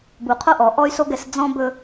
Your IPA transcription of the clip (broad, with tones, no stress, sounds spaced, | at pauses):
b u˨ qʰ o˦ ʔ ɔ˨ ʔ ɔ˦ y̯ s o˦ ɡ ɛ˨˦ s d͡z ɔ̃˦ b ɵ˦